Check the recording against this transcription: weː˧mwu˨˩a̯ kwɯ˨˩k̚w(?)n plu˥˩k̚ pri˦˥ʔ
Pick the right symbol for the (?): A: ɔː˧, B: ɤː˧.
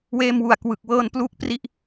B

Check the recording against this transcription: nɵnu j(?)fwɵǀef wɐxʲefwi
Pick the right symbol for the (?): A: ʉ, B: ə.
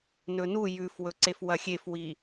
A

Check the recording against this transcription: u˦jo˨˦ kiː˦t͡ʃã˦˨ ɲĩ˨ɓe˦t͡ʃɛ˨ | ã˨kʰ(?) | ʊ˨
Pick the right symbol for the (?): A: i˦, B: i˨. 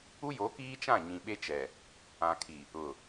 B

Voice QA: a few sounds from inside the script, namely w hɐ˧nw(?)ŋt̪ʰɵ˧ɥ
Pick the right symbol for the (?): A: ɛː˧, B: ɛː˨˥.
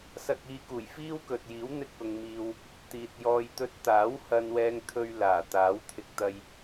A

